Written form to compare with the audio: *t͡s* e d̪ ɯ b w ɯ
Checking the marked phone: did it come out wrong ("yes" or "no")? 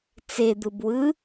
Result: no